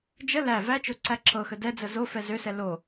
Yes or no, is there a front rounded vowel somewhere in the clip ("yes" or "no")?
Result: yes